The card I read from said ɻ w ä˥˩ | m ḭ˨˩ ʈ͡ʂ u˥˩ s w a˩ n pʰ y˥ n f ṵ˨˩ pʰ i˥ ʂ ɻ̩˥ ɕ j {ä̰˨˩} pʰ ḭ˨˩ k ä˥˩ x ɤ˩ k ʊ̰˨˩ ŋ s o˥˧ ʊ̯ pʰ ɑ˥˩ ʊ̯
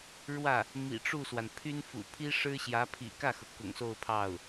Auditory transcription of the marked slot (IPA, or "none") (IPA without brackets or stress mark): ä˧˥